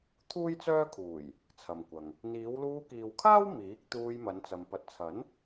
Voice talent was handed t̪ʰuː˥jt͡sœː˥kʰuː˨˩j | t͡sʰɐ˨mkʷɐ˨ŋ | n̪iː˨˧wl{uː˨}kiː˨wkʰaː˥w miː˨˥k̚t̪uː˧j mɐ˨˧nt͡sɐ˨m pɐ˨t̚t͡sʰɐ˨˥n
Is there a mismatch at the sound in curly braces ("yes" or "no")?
yes